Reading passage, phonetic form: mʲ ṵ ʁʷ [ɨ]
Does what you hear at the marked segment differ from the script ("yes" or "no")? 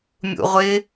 yes